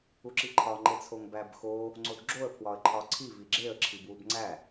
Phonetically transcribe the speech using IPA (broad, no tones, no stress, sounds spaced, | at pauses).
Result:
u ǁ i ǃʰ ɒ ŋ͡ǃ e t͡sʰ o ŋ b æ b x o | ŋ͡ǀ o d ɡ͡ǁ o ə̯ pʰ w ɒ ə̯ ǃʰ ɒ ǀʰ i v i ɡ͡ǁ e ə̯ ǁʰ i b w u b ŋ͡ǀ æ